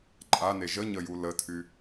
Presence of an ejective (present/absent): present